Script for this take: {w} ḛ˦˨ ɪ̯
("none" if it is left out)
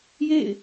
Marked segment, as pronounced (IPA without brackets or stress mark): j